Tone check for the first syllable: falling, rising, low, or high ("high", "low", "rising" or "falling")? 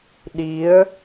rising